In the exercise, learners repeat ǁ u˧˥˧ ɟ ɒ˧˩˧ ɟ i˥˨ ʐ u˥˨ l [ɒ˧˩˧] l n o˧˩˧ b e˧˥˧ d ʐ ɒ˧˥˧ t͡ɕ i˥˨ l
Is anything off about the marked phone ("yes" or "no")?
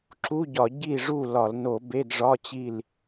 no